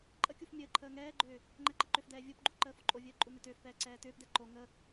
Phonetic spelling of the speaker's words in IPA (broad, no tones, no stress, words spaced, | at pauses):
ǃʼəkʲuf mʲəːǃʰəː ŋɛːɡ͡ǃʏː | ŋ͡ǃɛǃəǃʏfdɛː vʲopɡ͡ǃu ǃəːfoǃʼovʲəː ǃʼunʏtʏːfpɛː ǀɛːtʏːpdɛ ǃo ŋə